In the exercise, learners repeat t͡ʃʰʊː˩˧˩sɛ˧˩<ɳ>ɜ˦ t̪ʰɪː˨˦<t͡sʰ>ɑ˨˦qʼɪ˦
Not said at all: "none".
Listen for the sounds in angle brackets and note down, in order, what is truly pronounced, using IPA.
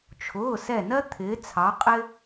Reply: n, t͡sʰ

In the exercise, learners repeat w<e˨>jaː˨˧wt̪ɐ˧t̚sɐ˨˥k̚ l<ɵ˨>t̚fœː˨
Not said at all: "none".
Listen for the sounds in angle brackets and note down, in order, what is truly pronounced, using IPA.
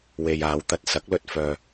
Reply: e˨, ɵ˨

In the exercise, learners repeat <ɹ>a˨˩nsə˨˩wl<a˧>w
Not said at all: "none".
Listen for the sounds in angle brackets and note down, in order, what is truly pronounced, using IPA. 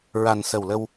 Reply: ɹ, ə˧

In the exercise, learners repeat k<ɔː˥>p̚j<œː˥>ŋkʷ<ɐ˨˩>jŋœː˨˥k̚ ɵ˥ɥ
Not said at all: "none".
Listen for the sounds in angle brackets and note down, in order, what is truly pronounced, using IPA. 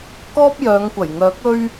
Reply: ɔː˥, œː˨˧, ɐ˨˩

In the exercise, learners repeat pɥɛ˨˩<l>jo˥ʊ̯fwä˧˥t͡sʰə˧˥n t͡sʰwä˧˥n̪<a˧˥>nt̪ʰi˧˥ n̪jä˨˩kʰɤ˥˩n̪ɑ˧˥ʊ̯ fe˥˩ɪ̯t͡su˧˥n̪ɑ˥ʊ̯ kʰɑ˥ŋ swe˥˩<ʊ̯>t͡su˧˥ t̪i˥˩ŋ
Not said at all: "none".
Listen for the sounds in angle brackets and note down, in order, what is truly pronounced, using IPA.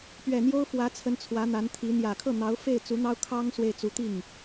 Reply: n̪, a˧˥, ɪ̯

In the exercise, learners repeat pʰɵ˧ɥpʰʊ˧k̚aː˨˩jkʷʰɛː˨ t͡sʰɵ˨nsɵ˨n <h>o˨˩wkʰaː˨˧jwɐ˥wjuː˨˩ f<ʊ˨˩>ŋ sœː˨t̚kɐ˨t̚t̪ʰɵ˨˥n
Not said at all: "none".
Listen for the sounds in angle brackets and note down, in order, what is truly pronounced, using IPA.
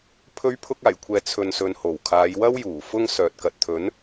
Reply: h, ʊ˧

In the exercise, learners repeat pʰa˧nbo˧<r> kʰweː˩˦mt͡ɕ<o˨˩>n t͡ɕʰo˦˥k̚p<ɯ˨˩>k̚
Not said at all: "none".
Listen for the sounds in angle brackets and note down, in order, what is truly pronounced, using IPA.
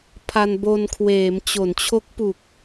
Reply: n, o˩˦, u˨˩

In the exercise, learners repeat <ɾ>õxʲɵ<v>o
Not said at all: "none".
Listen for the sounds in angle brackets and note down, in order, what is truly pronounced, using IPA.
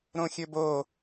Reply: ɾ, b

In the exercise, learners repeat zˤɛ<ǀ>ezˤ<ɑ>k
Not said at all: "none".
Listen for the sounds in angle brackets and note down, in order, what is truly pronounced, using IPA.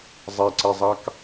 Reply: ǀ, ɑ

